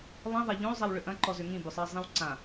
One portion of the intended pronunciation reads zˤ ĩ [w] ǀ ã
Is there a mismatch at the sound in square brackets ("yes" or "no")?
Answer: no